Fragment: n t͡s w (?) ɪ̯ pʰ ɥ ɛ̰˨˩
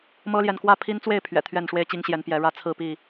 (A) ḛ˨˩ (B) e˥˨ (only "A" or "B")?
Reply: B